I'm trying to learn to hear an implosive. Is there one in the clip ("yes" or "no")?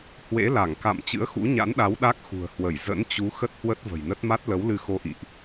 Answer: yes